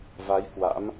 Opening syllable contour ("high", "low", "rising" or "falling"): rising